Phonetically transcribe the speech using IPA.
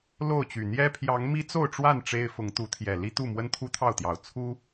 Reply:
lo˥˨ʊ̯t͡ɕy˨˩ n̪jɛ˦ pʰjɑ˨˦ŋmi˦t͡so˥˨ʊ̯ʈ͡ʂwa˥˨n ʈ͡ʂe˦ɪ̯ fʊ˨˦ŋt̪u˨˦t̪ʰjɛ˨˩ li˦t̪u˥˨ mwə˦nt̪ʰu˦t̪ʰɑ˥˨ʊ̯t̪jɑ˨˩ʊ̯ t͡sʰu˦

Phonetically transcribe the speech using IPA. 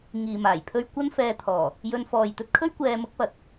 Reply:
ŋiː˨maː˨˩jpʰɵ˥ɥ kʷɐ˥n fɛː˧t̪ʰɔː˨˩ | jɵ˧n fɔː˨jt̪ɵ˥t̚kʰɵ˥ɥ kʷɛː˧ mʊ˥k̚pɐ˨t̚

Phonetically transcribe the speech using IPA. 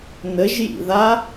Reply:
nəʒjḭða

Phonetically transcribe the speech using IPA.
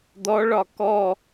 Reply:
dɔɭɒ kɔ

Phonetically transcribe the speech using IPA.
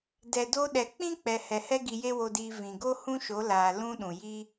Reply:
dɛ˨do˧ɗɛ˨ k͡pĩ˦k͡pɛ˨ hɛ˨hɛ˦ ɡi˧je˦wo˧diː˧ vĩ˨ɡo˦ hũ˦ʃo˨˦laː˨ lũ˧ ɗũ˨ji˦

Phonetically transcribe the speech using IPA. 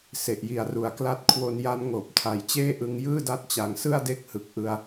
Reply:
se˨˩ʔji˨˩a̯ru˨˩a̯ kla˥˩t̚ kʰwo˧nja˦˥n ŋoː˨˩p̚tʰa˨˩jt͡ɕeː˥˩ʔɯ˧ŋ jɯː˥˩da˦˥t̚t͡ɕa˨˩ŋsɯ˥˩a̯ de˥˩k̚hɯ˨˩k̚ʔɯ˧a̯

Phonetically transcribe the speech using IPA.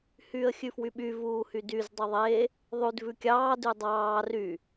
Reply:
hyːə̯xʲʉfwyɓy vuːhydyz dˤøðˤeː | ðˤʉd vʉkʲɑː dʉdˤɑː ry

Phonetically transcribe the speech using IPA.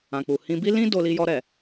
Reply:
ã˨k͡pu˨hĩ˧bi˦ lĩ˦ do˧li˧jɔ˧ ɾɛ˨

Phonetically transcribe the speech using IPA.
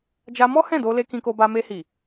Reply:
d͡ʒa˧mɔ˦ hɛ̃˦˨do˧le˧ kĩ˧ko˧ba˧ me˧hi˨

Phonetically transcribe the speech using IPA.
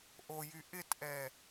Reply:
ʔojy ʔɪtʔɛ

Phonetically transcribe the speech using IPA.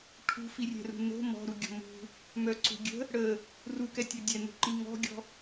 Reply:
ʈʰṳfirʲɛ̤rṳ no̤ mɔ̤ɾuɡʲɔ̤ mṳ | mœǀṳɡʲə̤ | ɽə | rukɛtʲɤ dʲɛn̪ṳǃi ŋɔ̤ɡʲɔ̤

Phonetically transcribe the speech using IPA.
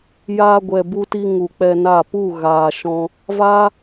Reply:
jaː˧ɡʷɛ˨bu˧ti˧ ŋu˨k͡pɛ˧na˦˨ pu˦˨ ɣaː˨ʃɔ̃˧ | vaː˦

